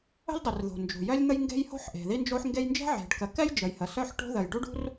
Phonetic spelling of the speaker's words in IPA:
ə̤˥lʲdˤi˩rðo̤˩ nd͡ʒṳ˩jœ˥lʲn̪ə˥j ŋɡe̤˥jho̤˥ħ ʔe̤˩ði˥nd͡ʒo˥ħŋɡe˥j nd͡ʒɛ̤˥ʕe̤˩ɖkə˩kɛ˥j d͡ʒə˩jhə˩sœ˥ħʈo̤˥ ðə˩jɖu˥ɖṳ˥r

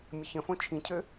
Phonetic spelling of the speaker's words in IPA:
mʲəçə̃fõ t͡ʃʰĩcʰø

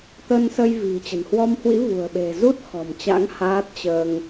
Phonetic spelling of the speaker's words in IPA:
t̪ə˧nsə˧jvi̤˨˩ t͡ɕə̤˨˩nhwɔ˧mhwḭ˧˥ vṳ˨˩ə̯ɓe̤˨˩zu˦˥t̚ xɔ̤˨˩mt͡ɕa̰˧˥ŋ haː˦˥t̚t͡ɕəː˧ŋ

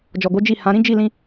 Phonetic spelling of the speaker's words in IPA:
d͡ʒɔ˨ɡo˨˦ d͡ʒi˦˨hã˨˦ ɾĩ˦d͡ʒi˦˨lĩ˧

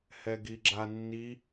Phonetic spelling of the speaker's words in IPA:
hɛɡiɡ͡ǁanːi

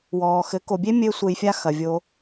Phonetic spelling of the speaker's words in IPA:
wɔː˨xɘ˨˦ ko˨bʲe˦ mʲɘː˦sʷe˧jfʲa˦ xɐ˨vʲoː˧

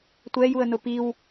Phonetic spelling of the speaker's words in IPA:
tʷɛjuə̯nʊ piw

